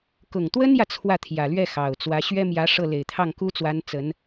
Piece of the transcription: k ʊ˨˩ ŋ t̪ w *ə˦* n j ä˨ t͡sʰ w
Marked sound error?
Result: yes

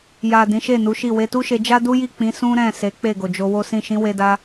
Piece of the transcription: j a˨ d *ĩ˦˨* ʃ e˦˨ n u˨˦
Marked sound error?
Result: yes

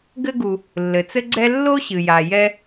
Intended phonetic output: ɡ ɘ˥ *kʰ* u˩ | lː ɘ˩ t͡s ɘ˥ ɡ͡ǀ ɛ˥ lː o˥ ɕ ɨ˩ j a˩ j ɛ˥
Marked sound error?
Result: yes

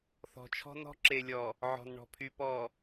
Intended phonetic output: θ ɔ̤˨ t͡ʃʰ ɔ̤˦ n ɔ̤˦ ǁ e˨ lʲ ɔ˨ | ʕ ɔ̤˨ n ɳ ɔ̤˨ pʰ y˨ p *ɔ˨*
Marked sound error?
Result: no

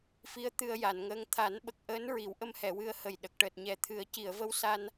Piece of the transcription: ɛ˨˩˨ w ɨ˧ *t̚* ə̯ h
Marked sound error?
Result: yes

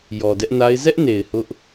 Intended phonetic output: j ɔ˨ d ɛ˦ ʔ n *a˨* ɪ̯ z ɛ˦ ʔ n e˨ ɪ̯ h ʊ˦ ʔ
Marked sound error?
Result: yes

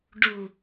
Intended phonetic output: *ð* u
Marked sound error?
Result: yes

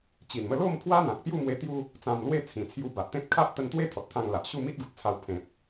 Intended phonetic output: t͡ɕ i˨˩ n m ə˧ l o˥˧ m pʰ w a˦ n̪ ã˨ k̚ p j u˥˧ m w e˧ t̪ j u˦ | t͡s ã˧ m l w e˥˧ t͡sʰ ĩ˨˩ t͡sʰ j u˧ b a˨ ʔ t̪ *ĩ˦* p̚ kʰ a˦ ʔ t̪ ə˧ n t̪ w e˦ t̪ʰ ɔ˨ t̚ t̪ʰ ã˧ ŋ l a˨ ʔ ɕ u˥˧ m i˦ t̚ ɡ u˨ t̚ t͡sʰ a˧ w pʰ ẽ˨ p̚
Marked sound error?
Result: yes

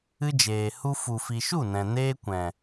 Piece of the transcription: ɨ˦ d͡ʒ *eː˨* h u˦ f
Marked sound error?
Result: no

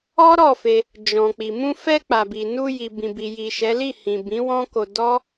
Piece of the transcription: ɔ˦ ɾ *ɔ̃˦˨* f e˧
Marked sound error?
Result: yes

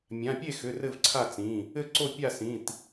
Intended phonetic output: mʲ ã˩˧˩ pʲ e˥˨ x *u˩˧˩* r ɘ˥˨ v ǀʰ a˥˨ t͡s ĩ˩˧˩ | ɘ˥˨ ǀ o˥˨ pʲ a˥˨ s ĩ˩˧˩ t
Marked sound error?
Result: yes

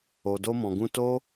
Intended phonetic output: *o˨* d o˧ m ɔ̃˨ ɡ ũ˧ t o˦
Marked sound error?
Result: no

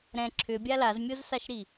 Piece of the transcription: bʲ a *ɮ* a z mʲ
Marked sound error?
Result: yes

